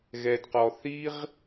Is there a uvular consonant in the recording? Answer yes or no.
yes